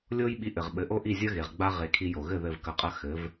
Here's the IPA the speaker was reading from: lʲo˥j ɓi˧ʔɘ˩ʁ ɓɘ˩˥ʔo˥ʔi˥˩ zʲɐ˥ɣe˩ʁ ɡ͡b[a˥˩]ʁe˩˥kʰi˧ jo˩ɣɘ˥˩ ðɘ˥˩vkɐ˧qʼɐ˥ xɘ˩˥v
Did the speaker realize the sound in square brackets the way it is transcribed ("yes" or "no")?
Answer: no